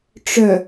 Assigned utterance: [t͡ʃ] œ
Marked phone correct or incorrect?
incorrect